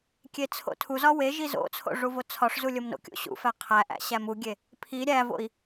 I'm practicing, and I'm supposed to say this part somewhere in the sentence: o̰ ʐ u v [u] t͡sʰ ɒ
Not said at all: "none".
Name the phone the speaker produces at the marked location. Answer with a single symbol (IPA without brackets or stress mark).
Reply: o